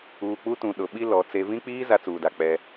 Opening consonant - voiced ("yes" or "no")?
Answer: no